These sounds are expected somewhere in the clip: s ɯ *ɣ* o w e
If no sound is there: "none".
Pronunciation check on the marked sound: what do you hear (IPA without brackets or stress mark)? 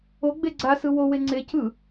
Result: w